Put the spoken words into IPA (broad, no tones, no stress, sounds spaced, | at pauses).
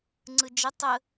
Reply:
ŋ͡ǀ ɯ d͡ʒ ə tˤ ə